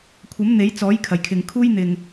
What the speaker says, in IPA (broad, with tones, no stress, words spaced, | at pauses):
kʷʰɐ˨˥m n̪e˨˥jt͡sɔː˨˥j kʰɐ˨˩jkʰɪ˨ŋ kʰuː˥jn̪ɪ˨ŋ